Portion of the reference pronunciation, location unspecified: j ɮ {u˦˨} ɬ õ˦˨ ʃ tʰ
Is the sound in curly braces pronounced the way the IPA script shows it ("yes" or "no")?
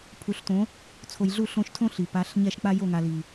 yes